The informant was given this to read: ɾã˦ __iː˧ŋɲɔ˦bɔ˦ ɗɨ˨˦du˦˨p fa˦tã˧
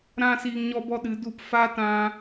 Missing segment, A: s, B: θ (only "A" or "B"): A